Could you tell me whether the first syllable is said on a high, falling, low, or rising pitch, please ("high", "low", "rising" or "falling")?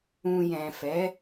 low